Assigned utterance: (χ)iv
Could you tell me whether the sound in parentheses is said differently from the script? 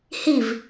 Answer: yes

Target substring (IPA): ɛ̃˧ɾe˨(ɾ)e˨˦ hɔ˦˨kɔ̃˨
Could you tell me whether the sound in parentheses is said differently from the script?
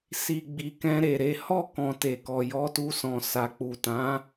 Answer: no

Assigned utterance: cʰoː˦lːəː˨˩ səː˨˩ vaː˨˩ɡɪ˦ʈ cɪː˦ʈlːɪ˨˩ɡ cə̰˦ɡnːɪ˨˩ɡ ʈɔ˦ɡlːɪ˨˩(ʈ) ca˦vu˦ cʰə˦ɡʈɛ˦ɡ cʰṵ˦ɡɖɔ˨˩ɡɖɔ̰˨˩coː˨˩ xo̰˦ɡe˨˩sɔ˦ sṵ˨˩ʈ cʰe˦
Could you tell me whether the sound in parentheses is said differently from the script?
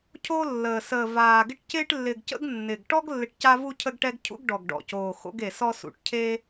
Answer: no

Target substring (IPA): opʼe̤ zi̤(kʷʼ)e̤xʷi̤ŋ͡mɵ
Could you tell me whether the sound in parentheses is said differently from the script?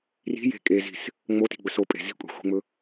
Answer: no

